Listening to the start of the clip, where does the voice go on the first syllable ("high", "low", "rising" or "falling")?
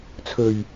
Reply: low